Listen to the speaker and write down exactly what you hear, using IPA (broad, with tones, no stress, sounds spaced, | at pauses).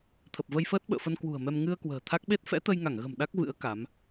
t̪ʰ ə˨˩ p̚ v ə˧ j f əː˦˥ t̚ ɓ ə̰ː˧˨ f ə˧ n k w ṳ˨˩ ə̯ m ɛ˧ m ŋ ɨ˧ ə̯ k w ə̤ː˨˩ t̪ʰ a˦˥ k̚ ɓ e˦˥ t̚ f ɛ̰˧˥ t̪ ə˧ j ŋ a˧˩ ŋ ɣ ə̤˨˩ m ɗ a˦˥ k̚ v ɨ̰˧˥ ə̯ k a˨˦ m